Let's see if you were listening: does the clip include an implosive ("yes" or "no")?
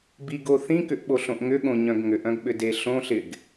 yes